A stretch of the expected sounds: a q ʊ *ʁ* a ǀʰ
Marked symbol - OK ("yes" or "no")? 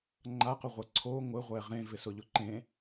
no